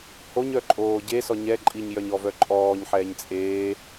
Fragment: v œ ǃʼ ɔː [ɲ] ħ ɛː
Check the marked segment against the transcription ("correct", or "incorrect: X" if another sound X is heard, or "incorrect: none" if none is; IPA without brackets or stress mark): correct